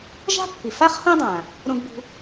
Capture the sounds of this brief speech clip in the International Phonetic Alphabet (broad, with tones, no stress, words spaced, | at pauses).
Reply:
ʒa̤˥ pːi˩fa˥χhõ˥dˤã˩ | ɾõ˧ɡbṳ˧